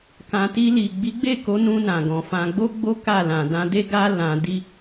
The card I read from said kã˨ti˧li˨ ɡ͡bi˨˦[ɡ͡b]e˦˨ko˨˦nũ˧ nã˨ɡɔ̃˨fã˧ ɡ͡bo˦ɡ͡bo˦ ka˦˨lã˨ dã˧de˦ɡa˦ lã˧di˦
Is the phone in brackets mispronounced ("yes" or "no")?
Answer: no